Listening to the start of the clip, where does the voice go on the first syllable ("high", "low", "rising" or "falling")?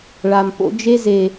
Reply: low